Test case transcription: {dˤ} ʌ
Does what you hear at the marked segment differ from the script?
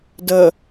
yes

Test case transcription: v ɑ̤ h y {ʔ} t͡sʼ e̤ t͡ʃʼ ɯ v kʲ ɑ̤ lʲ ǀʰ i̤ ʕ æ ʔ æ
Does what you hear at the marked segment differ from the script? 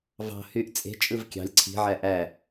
no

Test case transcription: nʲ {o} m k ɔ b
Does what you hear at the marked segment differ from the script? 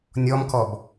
yes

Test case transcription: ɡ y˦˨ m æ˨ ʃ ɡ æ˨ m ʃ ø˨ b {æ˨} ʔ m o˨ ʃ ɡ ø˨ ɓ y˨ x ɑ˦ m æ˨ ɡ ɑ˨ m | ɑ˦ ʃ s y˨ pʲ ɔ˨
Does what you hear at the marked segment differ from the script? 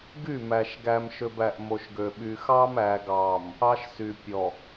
no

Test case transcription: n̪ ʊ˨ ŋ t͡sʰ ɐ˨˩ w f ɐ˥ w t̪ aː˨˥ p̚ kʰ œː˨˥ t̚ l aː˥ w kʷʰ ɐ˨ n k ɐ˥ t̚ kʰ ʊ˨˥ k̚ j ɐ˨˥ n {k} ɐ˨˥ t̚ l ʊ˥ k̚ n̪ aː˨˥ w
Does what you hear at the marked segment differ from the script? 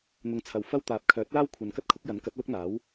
no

